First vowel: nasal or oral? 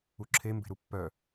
oral